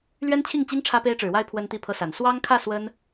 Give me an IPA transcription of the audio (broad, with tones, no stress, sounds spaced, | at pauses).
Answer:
l ɥ ɛ˦ n t͡ɕʰ i˥˨ ŋ t͡ɕ i˦ ŋ ʈ͡ʂʰ ä˦ p e˦ ɪ̯ ʈ͡ʂ ɻ̩˨˦ w a˦ ɪ̯ pʰ w ə˦ n t̪ i˥˨ pʰ ɤ˦ s a˨˦ n s w ɑ˦ ŋ kʰ ä˥˨ s w ə˦ n